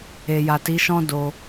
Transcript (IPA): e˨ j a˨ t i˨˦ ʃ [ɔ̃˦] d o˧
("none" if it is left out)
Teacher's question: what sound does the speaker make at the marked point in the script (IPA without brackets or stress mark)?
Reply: ɔ̃˦